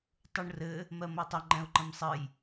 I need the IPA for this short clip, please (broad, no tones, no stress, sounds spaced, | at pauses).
tˤ u ɳ r ɘ | m ɜ m o tˤ ə ŋ͡ǃ ɛ̃ ʊ̯ ǃ ə̃ m sˤ ɘ j